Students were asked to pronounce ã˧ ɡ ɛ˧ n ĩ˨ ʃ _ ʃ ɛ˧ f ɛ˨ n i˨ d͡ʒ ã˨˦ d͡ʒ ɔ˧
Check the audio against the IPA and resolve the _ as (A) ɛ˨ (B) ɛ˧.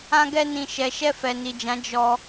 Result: A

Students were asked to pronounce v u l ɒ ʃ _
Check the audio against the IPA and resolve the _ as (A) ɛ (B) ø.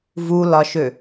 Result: B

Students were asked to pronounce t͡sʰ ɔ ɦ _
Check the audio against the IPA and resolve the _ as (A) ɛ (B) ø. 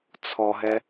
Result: A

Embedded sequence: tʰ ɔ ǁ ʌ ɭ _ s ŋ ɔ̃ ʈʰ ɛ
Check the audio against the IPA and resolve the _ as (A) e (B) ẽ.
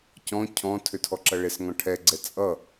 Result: A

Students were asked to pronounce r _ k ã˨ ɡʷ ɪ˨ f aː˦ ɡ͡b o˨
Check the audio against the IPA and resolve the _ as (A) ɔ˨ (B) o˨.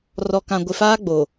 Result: A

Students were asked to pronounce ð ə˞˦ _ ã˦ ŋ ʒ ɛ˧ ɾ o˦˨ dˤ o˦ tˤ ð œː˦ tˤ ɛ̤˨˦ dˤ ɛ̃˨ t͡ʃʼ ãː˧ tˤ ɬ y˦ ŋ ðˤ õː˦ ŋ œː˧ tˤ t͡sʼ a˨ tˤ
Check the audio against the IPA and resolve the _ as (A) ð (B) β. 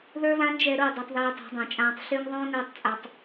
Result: B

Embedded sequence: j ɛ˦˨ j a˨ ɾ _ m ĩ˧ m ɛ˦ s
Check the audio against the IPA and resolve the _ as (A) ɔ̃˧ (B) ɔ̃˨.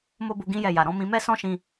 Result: A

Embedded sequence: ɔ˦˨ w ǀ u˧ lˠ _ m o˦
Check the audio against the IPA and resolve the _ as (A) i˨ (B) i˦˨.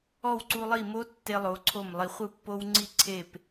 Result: B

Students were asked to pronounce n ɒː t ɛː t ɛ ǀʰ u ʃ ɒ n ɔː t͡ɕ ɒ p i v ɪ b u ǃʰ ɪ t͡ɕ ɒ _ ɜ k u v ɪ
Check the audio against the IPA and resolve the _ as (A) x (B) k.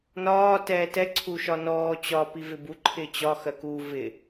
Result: A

